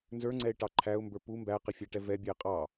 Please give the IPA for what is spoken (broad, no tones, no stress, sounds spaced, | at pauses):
n z ə˞ ŋ͡ǀ ɛ ɪ̯ ʈ ɑ ǃʰ æ ʊ̯ m b ə˞ p u m b æ q ɪ fʲ æ ʈ ɛ v ɛ bʲ ɛ ɪ̯ qʼ ɑ